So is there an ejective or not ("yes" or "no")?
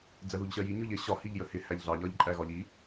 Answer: yes